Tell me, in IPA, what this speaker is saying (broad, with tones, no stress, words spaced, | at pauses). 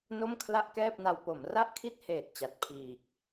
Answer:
no˥˩mkʰla˥˩ʔkɛː˥˩p̚na˧w po˩˦mra˥˩ʔkʰi˥˩t̚ heː˨˩t̚t͡ɕa˨˩t̚pʰiː˨˩k̚